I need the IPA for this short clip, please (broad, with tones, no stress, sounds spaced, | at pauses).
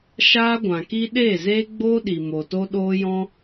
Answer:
ʃ aː˦ ɡʷ ã˨ k i˦ ɗ eː˦˨ z eː˦ ɡ͡b oː˦ ɗ i˨ m o˨ t o˦ ɗ oː˦ j ɔ̃˦